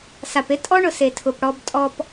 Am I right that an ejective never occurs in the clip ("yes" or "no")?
no